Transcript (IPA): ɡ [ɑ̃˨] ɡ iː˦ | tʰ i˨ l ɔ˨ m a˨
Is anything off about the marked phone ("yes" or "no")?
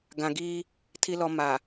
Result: yes